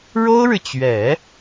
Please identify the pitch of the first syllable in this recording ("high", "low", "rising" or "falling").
high